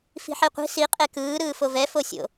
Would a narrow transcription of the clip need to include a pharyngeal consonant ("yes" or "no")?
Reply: yes